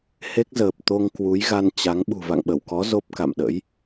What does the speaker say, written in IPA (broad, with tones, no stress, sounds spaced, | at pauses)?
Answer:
h e˦˥ k̚ z əː˨˩ p̚ t̪ o˧ ŋ k w u˨˦ j ɣ a˧ n t͡ɕ a˨˦ ŋ ɓ ṳ˨˩ v a̰˧˨ ŋ ɓ ə˧˩ w k ɔ˨˦ z o˦˥ p̚ k a̰˧˨ m ɗ ə̰˧˥ j